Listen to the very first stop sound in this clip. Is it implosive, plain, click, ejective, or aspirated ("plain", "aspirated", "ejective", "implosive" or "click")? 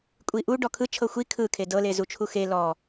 ejective